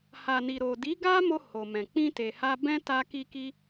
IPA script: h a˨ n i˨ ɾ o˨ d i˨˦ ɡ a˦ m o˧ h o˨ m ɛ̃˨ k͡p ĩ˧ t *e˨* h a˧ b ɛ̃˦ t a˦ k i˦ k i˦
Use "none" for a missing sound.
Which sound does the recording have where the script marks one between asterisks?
e˨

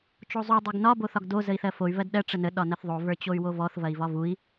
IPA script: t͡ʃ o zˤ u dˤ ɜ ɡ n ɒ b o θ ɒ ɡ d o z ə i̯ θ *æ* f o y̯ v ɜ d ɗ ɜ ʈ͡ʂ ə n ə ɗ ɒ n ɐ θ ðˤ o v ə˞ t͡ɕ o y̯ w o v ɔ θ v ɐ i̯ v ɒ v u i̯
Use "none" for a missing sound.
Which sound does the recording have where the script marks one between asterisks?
ɜ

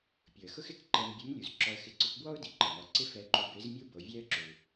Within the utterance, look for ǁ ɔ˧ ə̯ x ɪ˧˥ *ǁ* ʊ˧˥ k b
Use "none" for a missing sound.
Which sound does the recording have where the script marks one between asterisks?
ǀ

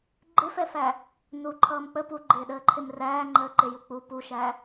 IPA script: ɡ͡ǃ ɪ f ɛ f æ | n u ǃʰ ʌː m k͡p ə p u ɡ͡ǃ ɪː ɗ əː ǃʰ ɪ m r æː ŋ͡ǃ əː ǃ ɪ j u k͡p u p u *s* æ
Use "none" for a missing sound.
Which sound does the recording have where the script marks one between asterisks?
ʃ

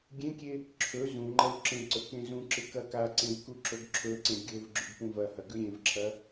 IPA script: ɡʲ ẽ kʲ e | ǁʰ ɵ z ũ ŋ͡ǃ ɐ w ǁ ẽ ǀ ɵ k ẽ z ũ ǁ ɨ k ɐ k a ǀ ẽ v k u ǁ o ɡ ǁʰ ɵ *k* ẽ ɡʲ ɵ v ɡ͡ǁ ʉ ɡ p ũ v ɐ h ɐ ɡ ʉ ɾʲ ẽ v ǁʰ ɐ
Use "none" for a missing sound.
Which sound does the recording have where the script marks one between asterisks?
ǀ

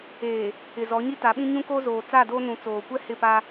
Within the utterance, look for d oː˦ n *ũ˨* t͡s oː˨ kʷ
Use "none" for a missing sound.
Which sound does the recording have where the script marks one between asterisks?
ũ˨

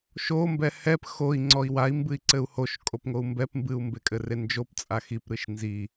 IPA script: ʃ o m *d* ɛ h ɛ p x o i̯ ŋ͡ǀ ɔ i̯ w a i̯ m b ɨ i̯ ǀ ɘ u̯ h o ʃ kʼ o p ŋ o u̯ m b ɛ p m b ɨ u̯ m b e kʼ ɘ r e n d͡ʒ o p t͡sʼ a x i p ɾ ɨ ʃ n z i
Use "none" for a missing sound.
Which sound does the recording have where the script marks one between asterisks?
b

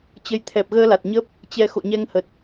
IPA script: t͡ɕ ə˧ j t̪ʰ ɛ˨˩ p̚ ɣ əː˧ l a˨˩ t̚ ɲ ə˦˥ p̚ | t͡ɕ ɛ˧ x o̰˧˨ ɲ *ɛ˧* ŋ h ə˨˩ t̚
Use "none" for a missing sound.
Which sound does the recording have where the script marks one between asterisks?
ɛ˧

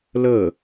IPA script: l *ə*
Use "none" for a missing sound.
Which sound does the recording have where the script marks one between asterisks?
ə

